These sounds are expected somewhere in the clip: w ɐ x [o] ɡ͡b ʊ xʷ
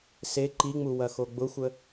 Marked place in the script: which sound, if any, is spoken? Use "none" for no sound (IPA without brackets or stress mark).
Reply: o